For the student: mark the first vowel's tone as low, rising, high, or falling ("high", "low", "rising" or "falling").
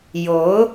rising